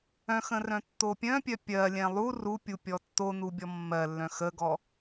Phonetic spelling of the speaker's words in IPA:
œ̃xə̃ rœ̃tːopʲœ̃pʲœ pʲɜlʲɛ̃ lˠu rupʲu pʲɔtːonu bʲɔmːɜlːœ̃ xəɡɔ

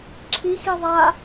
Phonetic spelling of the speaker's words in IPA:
ǁʰi xiðˤa

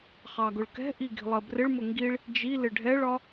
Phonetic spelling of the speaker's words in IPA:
χɑɡʊɭkɛ̤ʔi ɡi̤lˠɜbrɪɭmʊ ŋɡiɭ | d͡ʒi lɪɖʱɛɭɒ

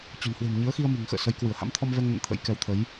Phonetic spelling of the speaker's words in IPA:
t͡ɕɔ̤˨˩nhwe̤˨˩mɲɨ˨˦ə̯ xi˧ə̯mi̤˨˩ŋxə̰ː˧˨ sə˨˦jkwɨ˧˩ə̯ ha̰˧˥mt̪ʰɔ˧mvɛ˧ŋnə̰˧˨n t̪ʰə̰˧˥jkɛ˨˦wt̪ʰə˨˦j

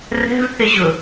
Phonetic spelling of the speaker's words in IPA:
rɛ̤vθɪʑʊ

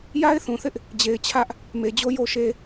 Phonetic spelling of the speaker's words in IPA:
ja˦ɪ̯θũ˨θɪ˦ʔ | d͡ʑe˨ɪ̯t͡ɕʰä˦ʔ | me˨d͡ʑo˦ jo˦ʃe˦

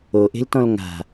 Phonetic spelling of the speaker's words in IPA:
oʔe̤ltɔ̃l ŋa̤

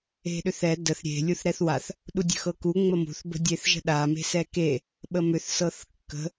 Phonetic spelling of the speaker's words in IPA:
e̤ɗʏθɛ dəθ ɾʲe̤ lʲuθɾɛθwaθ | ɗudʲə̤xɤku ŋ͡məmṳθ bə̤dʲeθʒə̤ɗa me̤sɛke | ɓəmʏθ sɤθkːə̤

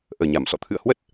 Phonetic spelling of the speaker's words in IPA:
ʔəː˨˩ɲa˧˩m sɔ̰˧˨ t̪ʰɨ̰˧˨ə̯hwə˦˥t̚

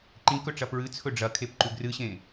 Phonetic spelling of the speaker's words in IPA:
ǃĩkɵʈ͡ʂɐ pɹɨt͡sʰɵ ɖ͡ʐɐkʰepǃʉ ɡrɨɕẽ

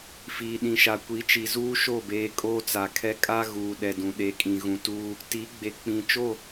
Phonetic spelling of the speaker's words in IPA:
fiː˨ɗĩ˨ʃa˨ kʷi˨˦t͡ʃi˨zuː˦ ʃo˦˨beː˨ kʼoː˦t͡sa˨kʰɛ˦ kʼa˦ ɣuː˨ ɗɛ˨dũ˨ ɗe˨kʼĩ˨ ɣũ˨tuː˦ | ti˨˦ɡ͡be˨ k͡pĩ˨ t͡ʃo˦˨

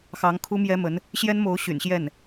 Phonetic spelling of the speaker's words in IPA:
xɑ˧˥ŋkʰu˥mjɛ˥mə˧˥n | ɕjɛ˥nmo˧˥ʊ̯ ɕy̰˨˩nɕjɛ˥˩n

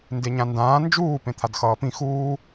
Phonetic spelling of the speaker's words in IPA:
ndeɲãndãː nd͡ʒuː pẽt̪ʰadxʌːpĩ xuː

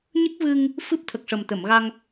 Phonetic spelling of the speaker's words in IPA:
ɲə˦˥k̚vɨ˧ŋ | fɨ˦˥p̚t̪ʰə˨˩k̚ʂə˨˩m t̪ə˨˩˨mɣa˧ŋ

